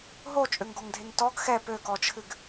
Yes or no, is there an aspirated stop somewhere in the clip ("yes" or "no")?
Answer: yes